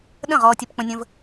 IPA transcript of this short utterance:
ɗə̃˦˨ ʁɔː˧tʲə˧p k͡pə̃˧nʲə̃˧v

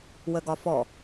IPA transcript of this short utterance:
wəɡɒfɔ

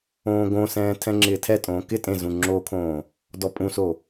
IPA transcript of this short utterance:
õːɡõsɛ̃ː tʰɛ̃ŋ͡ǁɪːtʰɛtʼõː kɪ tʼẽzũ ŋ͡ǁokʰõː | dɔpʼũso

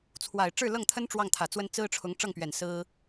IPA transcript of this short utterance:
t͡sʰwa˨˩ɪ̯ ʈ͡ʂɻ̩˥˧lɤ˥˩ŋt̪ʰə˥n ʈ͡ʂwɑ˥˩ŋt̪ʰä˨˩t͡swə˥n t͡sɹ̩˥ʈ͡ʂʰʊ˧˥ŋ ʈ͡ʂɤ˥˩ŋpɥɛ˨˩n sɹ̩˥

